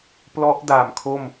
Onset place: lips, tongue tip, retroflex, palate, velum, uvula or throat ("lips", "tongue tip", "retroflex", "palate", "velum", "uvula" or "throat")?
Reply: lips